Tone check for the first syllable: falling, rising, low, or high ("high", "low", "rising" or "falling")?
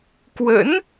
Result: rising